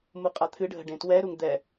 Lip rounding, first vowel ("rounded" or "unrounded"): rounded